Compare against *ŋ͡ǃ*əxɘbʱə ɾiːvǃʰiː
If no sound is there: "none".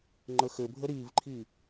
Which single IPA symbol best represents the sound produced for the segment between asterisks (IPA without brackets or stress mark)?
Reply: ŋ͡ǃ